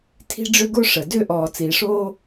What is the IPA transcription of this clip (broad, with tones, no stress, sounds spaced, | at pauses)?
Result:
tʰ i̤˧ ɖ͡ʐ ʏ˧ ɡ o˧ ʂ ə˩ d ʏ˧ ʔ ɔː˩ t͡s iː˩ ʂ oː˧